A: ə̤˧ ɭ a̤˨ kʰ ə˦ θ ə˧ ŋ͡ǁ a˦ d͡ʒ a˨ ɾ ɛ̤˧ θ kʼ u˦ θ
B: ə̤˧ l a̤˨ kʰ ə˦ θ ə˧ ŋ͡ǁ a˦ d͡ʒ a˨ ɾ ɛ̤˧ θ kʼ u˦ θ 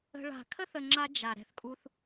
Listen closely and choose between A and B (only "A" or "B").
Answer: A